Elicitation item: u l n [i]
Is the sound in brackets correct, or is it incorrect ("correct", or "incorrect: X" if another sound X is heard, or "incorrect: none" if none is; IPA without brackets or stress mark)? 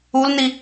correct